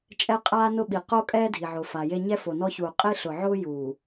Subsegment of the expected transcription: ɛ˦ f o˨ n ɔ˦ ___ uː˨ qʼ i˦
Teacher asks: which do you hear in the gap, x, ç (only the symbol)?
ç